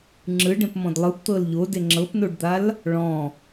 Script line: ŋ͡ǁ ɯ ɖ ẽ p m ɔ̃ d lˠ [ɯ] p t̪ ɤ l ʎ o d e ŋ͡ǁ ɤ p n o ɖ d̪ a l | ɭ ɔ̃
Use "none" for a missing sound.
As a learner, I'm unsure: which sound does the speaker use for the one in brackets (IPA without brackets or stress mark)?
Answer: ɯ